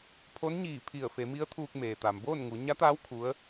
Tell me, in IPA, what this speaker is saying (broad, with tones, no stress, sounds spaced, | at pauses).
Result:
pʰ o˧˥ n ɲ iː˧˩ pʰ i˧˩ ə̯ f e˩˧ m i˧˥ ə̯ t̪ʰ uː˧ k̚ m eː˩ t̪ a˩ m b oː˥˨ n ŋ u˩˧ ɲ a˧˥ t̪ aː˧˥ w kʰ u˧˥ ə̯